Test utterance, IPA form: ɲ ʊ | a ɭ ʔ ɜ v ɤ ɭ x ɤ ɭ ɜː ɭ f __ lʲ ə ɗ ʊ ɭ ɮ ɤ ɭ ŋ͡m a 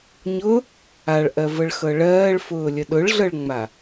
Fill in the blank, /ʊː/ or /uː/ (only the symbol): ʊː